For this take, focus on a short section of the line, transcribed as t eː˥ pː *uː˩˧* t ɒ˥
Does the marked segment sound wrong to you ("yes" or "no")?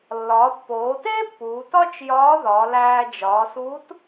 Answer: no